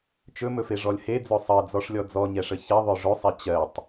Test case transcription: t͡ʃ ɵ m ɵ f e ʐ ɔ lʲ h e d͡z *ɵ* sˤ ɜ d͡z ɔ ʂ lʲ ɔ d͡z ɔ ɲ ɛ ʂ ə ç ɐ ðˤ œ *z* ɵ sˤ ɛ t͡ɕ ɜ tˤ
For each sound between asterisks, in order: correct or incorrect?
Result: incorrect: œ, incorrect: ʐ

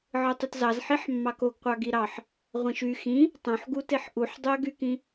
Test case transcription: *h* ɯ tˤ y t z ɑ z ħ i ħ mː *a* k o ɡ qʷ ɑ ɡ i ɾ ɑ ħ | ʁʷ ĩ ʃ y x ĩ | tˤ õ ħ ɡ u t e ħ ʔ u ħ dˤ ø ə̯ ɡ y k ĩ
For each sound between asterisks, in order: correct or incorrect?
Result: incorrect: ʕ, incorrect: ɑ

